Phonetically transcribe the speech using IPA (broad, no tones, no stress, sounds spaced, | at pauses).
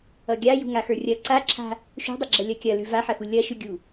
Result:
ʌ ɡʲ a j ṳ ŋ a x ə˞ rʲ ɐ ǀ a ǁʰ a̤ | ʃ ṳ dˤ ə ɡ͡ǁ ʌ lʲ ɐ kʲ ɐ l ʉ v a ħ ɐ x u lʲ ɐ ʃ ʉ ɡʲ u